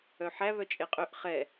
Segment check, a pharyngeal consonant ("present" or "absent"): present